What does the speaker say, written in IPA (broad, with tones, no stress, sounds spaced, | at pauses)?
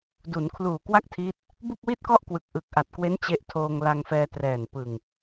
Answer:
d u˩˦ n kʰ l uː˨˩ k w a˥˩ k̚ tʰ iː˦˥ t̚ | b u˥˩ k̚ w i˥˩ t̚ k ɔ˥˩ ʔ k w ɯ˨˩ k̚ ʔ ɯ˨˩ k̚ ʔ a˨˩ t̚ k w e˦˥ n t͡ɕ e˦˥ ʔ tʰ oː˧ ŋ l a˧ ŋ f ɛː˧ t r ɛː˨˩ n p ɯ˨˩ ŋ